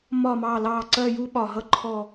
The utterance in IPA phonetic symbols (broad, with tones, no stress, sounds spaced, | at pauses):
m ɒ˦˨ m ɑ˦˨ l ɑ˦˨ ǀ ɜ˦˨ j u˦ ɓ ɒ˨˩ ɦ ʌ˦ ǃʰ ɔ˦˨